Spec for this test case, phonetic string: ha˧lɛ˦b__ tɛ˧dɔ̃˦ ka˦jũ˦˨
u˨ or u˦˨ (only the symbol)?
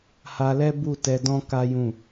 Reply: u˦˨